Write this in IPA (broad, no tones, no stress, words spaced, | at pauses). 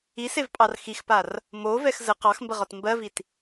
isevpʼɑr xixpar | movɛx zə qɑxmbəʁɒt mbɜvit